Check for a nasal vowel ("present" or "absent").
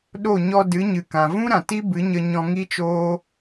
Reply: present